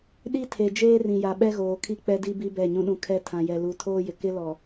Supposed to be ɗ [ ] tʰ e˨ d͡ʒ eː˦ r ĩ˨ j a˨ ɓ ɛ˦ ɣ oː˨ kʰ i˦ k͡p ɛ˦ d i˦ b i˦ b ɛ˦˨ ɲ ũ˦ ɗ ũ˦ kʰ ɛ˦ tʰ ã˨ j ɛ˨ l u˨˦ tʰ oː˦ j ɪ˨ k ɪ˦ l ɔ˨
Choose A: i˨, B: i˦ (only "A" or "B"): B